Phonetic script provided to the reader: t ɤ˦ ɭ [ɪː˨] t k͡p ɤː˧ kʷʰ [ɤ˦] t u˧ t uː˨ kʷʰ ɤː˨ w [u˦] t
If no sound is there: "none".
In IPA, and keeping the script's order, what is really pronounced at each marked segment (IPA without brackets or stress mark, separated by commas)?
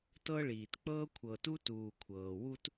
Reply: iː˨, ɤ˨, u˦